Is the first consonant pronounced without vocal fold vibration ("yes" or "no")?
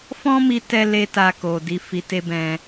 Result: yes